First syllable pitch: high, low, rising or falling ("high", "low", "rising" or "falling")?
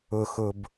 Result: low